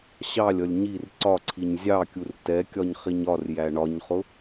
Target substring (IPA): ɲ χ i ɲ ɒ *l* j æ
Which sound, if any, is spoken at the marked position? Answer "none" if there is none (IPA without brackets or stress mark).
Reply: r